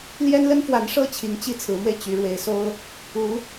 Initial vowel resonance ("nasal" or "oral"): oral